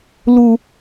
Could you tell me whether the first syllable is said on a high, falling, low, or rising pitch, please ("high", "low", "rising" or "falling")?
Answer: high